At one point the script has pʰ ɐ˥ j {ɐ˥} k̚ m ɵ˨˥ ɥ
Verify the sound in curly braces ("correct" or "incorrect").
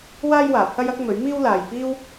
correct